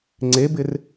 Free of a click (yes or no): no